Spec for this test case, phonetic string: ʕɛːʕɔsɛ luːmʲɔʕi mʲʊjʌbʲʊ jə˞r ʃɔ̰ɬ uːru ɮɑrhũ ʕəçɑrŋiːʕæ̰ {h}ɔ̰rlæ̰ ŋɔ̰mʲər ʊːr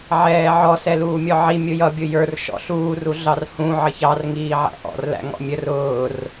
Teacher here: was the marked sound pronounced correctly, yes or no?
no